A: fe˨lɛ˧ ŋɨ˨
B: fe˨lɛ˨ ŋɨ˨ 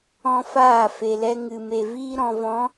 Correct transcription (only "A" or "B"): A